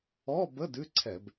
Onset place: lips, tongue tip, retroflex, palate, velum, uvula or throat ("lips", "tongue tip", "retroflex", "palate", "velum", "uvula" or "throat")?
lips